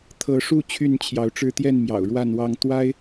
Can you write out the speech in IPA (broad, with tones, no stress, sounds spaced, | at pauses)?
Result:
t̪ʰ ɤ˨˦ ʂ u˥˨ t͡ɕʰ y˥˨ n t͡ɕʰ j ɑ˨˦ ʊ̯ ʈ͡ʂ ɻ̩˦ t̪ j ɛ˥˨ n m j ɑ̰˨˩ ʊ̯ ɻ w a˥˨ n w ɑ˥˨ ŋ t̪ w a˦ ɪ̯